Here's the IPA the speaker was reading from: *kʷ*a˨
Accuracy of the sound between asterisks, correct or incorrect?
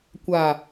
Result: correct